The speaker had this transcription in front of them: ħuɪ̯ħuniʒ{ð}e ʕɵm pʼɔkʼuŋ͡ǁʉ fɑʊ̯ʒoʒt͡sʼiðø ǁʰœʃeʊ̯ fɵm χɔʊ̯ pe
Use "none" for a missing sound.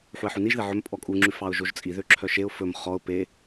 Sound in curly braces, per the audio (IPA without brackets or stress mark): ð